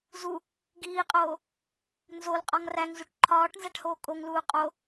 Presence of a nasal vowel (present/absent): absent